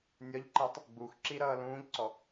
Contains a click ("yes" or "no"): yes